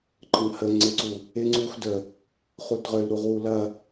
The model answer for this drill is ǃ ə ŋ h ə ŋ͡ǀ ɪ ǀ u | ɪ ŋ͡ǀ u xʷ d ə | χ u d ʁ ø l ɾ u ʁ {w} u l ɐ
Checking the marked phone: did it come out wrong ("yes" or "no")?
no